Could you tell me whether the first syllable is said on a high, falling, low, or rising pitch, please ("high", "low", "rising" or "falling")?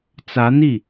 rising